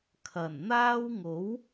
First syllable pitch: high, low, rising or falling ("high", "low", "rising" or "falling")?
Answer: low